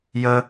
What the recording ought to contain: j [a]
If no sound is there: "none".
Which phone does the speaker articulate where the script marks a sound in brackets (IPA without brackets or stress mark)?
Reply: ə